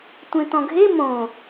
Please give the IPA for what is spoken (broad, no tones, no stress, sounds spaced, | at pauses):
tʷ ẽ t̪ ɔ̃ ɡʱ e m õ